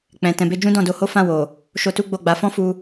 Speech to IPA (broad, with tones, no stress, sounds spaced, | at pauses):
k͡p ɛ̃˨ t ɛ̃˨ b e˧ d͡ʒ ũ˦ d ɔ̃˦˨ d o˧ h o˦ f ã˦˨ w o˨ | ʃ o˧ t u˦ ɡ͡b o˦˨ ɡ͡b a˨˦ f ɔ̃˦ f u˧